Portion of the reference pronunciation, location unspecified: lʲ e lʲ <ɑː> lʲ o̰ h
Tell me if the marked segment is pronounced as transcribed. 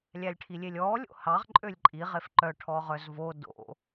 no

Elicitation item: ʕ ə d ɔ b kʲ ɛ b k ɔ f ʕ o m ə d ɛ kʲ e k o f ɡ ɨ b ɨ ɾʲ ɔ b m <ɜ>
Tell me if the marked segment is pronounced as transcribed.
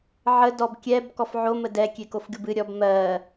yes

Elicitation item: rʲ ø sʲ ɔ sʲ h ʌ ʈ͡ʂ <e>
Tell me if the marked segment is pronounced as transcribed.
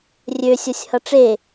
yes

